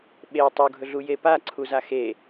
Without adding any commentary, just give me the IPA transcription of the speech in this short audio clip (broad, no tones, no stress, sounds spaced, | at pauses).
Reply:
ɓ e tˤ u ɡʱ ɵ ɮ u j e p a ǀʰ u z a x e